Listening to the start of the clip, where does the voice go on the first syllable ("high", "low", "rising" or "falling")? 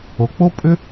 low